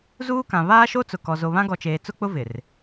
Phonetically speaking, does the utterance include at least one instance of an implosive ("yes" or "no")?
no